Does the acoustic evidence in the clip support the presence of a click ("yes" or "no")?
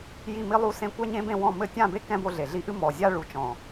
no